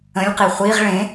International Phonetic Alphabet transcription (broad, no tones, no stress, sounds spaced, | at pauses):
ə̃ lʲ q i χʷ i ʁ ɭ ẽ